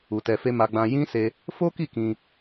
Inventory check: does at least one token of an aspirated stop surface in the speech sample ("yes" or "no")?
no